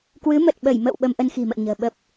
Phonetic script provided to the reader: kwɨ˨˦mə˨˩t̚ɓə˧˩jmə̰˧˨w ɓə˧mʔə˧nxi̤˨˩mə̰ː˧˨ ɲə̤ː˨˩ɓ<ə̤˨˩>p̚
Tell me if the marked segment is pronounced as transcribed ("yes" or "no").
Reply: no